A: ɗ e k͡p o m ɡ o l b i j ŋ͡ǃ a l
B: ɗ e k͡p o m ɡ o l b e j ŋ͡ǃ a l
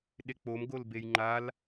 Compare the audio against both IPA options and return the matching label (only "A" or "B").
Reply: B